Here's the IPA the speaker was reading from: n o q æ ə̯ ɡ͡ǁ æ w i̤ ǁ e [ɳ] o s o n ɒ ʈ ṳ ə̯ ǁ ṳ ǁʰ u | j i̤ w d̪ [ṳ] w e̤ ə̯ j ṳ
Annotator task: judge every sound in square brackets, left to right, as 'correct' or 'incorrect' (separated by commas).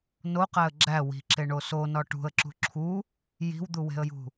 correct, incorrect